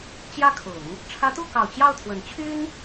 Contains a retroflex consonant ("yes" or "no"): yes